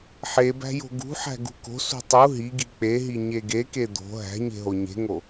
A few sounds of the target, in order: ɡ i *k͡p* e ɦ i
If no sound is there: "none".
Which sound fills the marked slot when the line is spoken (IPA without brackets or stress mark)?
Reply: k͡p